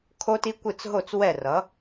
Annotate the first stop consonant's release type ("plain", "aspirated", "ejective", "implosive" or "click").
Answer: aspirated